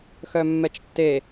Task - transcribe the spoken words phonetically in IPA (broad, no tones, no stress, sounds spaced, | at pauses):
x œ mː ɛ t͡ʃ tː e